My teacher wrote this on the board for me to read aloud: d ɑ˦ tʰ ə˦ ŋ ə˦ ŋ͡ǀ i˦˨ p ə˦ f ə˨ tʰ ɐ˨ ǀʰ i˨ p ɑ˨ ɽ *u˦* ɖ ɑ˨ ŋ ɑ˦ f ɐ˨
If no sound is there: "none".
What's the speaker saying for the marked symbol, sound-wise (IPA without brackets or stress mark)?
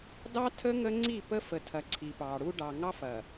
u˦